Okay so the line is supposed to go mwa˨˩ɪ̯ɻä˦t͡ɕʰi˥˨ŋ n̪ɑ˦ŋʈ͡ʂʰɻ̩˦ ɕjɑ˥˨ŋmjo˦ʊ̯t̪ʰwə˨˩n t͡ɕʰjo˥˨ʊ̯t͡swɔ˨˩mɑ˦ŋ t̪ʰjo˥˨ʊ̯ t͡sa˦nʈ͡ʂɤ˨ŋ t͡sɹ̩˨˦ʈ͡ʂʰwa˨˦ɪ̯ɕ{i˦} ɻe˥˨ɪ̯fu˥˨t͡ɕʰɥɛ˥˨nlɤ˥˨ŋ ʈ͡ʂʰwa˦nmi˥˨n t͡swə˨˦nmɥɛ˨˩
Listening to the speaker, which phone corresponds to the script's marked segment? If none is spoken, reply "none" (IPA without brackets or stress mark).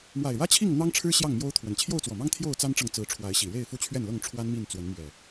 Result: i˨˩